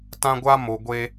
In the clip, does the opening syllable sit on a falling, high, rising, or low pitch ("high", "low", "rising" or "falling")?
high